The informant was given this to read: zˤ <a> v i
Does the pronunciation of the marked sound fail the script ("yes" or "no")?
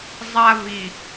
no